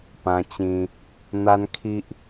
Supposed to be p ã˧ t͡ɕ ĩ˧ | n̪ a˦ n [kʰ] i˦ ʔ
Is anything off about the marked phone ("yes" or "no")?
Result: no